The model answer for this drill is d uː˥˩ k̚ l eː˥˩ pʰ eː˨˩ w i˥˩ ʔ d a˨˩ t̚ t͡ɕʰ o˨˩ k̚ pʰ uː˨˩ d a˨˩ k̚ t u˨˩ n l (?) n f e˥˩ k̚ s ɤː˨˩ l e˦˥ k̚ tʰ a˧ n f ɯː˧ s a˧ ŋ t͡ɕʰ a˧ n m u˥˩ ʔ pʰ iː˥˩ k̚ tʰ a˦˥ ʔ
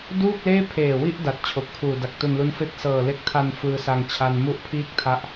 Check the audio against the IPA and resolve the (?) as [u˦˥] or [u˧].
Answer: u˦˥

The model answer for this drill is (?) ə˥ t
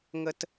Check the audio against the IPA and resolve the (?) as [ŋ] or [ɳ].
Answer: ŋ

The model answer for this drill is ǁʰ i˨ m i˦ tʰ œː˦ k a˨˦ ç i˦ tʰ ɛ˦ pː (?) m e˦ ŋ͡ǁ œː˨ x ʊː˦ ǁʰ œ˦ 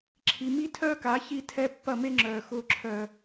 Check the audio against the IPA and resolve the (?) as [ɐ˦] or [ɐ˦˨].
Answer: ɐ˦˨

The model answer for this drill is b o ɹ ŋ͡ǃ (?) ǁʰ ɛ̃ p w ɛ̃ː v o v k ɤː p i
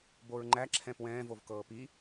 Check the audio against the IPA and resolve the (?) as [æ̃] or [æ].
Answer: æ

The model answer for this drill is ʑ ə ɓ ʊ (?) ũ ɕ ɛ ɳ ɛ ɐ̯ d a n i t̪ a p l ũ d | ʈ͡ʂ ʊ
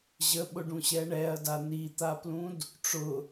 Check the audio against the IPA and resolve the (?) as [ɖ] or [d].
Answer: ɖ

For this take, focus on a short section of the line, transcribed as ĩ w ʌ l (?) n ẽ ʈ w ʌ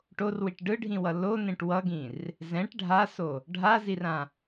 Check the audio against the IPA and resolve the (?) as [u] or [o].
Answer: o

